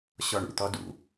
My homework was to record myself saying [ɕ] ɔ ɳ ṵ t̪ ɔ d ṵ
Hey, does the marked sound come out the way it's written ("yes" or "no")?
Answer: yes